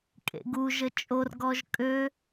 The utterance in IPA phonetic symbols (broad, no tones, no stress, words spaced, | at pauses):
kʼḛɡuʒə t͡ʃʼorɡɔʒ kʼø